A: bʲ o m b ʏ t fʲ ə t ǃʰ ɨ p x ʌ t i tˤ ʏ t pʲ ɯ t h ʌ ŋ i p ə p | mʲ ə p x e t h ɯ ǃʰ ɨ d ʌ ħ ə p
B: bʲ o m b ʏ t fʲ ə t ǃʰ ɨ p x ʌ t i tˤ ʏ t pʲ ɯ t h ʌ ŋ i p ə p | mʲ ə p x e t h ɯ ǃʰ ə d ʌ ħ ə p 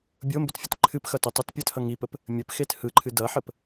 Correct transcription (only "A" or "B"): A